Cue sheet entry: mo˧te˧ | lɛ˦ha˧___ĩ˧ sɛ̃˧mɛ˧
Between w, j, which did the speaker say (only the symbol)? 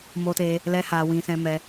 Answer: w